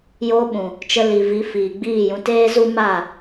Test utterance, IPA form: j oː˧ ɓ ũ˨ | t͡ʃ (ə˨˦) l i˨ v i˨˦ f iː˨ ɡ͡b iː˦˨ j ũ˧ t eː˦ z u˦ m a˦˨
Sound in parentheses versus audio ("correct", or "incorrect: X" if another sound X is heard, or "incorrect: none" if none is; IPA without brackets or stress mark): incorrect: ə˧